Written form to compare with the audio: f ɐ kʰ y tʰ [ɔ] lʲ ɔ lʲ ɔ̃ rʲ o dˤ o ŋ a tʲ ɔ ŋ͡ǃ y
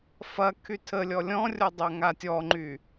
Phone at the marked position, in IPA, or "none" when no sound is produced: ə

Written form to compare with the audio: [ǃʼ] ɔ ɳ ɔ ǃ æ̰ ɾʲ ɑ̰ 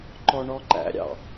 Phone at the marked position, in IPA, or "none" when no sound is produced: ǃ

